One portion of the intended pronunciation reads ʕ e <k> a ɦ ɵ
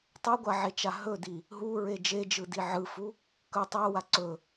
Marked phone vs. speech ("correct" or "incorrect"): incorrect